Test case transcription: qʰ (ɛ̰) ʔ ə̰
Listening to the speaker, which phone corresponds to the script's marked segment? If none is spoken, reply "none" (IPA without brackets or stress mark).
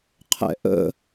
ɛ̰